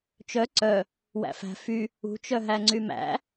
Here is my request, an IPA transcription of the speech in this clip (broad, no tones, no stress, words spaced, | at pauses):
t͡ʃœ ǀœ | wæ̰fæ̤ fy | ṳt͡ʃœɦæŋ͡ǀy mæ̰